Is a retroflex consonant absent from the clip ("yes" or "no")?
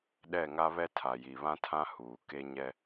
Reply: yes